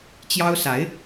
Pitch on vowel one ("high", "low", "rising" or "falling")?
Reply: high